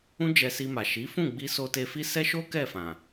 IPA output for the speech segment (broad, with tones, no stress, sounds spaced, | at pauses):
ũ˦ d͡ʒ ɛ˧ s i˧ m a˨ ʃ i˨˦ f ũ˦˨ ɡ͡b i˧ s o˧ t e˧ f i˦ s ɛ˦ ʃ o˦ k ɛ˦˨ f ã˨